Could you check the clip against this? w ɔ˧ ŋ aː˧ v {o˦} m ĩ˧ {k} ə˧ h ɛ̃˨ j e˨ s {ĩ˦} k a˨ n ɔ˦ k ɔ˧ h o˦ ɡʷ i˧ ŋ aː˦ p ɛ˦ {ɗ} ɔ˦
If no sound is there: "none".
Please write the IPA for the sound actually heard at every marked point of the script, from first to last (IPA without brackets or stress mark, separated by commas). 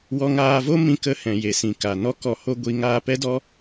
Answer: o˦, k, ĩ˨, d